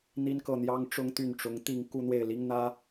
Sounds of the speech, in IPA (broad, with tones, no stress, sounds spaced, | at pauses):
n̪ i˥ n k ɤ˥˩ n̪ j ɑ˥ ŋ ʈ͡ʂ ʊ˥ ŋ t̪ y˥˩ n ʈ͡ʂ ʊ˧˥ ŋ t̪ i˥˧ ŋ k u˥˧ n̪ w e˥˩ ɪ̯ l i˥ ŋ n̪ ä˥